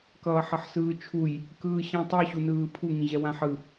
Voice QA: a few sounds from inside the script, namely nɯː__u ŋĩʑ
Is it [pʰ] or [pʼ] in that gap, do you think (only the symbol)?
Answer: pʰ